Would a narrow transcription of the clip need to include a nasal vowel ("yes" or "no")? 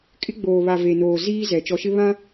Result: yes